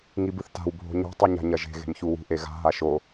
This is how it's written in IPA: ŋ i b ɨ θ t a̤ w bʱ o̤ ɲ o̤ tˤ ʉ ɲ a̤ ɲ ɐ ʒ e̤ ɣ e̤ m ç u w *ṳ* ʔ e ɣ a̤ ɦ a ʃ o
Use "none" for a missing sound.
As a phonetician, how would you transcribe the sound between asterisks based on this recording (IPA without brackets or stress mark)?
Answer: ṳ